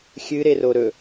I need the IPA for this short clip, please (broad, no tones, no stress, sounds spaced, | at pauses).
xʲ ɨ ɾ e r o ɾ ɵ